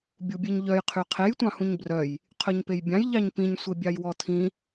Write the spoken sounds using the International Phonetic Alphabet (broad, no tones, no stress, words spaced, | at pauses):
bʲubʲeɲʎœj qʰyqʰej tʷɑ̃hũɲbrœj | qʰœɲpejbʲɑ̃j ʎɑɲpĩɲ sʷebʲɑjwɔtʰĩ